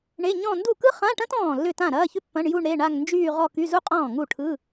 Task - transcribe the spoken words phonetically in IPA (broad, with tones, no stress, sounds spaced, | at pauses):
ɳ e˧˥˧ ɲ ɔ̃˥˧ n d u˥˩ k ɯ˥ χ ã˧˥˧ ʈ ɐ̃˥ t ɔ̃ː˥˩ lː ʏ˥˩ t ã˥˩ ɾ ɐː˧˥˧ ç ʏ˥ pː ɐ̃˧˥˧ ɳ j u˥˧ ɳ ɾ e˧˥˧ ɳ a˥˧ ŋ n d͡ʒ yː˥˧ ʁ ɔ˥˧ k y˧˥˧ z u˥ qʼ ɔ̃ː˥˩ ŋ u˥˩ ʈʰ ɯ˧˥˧